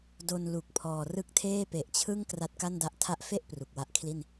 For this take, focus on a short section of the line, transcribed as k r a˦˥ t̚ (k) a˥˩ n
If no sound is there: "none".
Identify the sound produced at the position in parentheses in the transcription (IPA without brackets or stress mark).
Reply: k